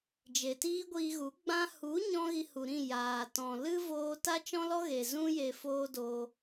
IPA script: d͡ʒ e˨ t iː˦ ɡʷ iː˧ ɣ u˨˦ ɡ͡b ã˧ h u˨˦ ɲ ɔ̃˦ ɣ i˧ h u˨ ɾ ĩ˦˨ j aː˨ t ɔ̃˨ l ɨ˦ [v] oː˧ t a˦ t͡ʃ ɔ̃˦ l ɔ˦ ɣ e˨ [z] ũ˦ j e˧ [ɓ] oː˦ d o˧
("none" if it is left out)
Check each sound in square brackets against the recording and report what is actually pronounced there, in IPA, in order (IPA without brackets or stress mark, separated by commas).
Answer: v, z, f